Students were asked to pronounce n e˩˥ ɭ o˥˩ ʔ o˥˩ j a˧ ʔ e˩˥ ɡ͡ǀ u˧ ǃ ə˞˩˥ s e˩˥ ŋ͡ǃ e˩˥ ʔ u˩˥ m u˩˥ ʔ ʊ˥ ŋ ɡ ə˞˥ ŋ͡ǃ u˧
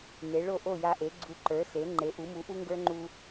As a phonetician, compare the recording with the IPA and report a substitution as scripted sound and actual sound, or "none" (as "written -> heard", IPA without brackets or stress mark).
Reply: ʊ˥ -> u˥